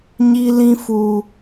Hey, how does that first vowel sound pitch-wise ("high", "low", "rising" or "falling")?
high